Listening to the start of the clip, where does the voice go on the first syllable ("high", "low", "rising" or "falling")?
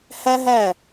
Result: high